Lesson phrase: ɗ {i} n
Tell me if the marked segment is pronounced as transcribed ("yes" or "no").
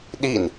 yes